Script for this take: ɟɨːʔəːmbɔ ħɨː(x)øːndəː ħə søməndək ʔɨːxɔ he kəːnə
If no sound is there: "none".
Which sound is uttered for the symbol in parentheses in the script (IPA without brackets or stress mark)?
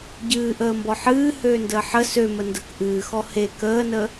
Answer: h